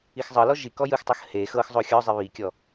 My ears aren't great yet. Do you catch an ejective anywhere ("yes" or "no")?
no